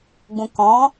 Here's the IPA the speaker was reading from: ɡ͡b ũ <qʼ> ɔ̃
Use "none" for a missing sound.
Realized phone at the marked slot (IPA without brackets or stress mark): k